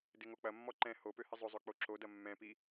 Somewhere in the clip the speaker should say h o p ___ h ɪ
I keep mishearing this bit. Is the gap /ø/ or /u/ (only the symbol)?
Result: ø